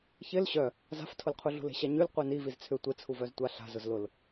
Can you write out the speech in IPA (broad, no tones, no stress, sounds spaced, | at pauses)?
ç ɪ l ɕ œ | z a̤ f tʰ ʊ l qʰ u ɮ ṳ l e̤ ɕ a ɲ y l qʷ i n i v i z t͡sʰ ʏ tʷ ɪ t͡sʰ u v œ z tʷ a ɬ a̤ z ʊ z l ʊ l